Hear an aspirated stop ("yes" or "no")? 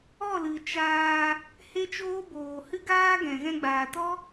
no